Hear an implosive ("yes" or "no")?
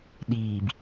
yes